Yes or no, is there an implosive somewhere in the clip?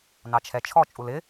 no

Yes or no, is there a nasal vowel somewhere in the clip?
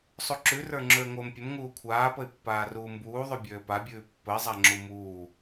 no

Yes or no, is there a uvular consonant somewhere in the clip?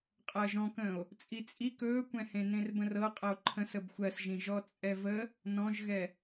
yes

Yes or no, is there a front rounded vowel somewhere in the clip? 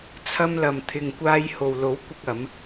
no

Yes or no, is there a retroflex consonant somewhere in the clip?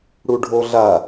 yes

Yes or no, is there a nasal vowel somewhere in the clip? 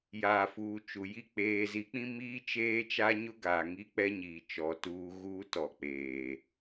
yes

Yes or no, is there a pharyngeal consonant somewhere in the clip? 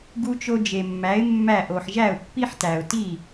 yes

